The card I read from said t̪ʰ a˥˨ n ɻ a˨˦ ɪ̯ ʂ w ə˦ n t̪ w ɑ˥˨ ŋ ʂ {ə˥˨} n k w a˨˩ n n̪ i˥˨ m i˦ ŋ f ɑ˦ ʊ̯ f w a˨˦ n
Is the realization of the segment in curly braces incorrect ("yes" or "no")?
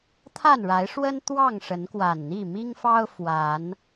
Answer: yes